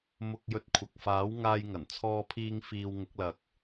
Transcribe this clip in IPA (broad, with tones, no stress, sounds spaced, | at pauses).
m ʊ˧ k̚ j ɵ˧ t̚ kʷʰ ɐ˨ k̚ f aː˨˥ w ŋ aː˧ j ŋ ɐ˨˩ n t͡sʰ ɔː˧ pʰ iː˧ ŋ f iː˧ w ŋ ʊ˨˥ k̚ l ɐ˨ k̚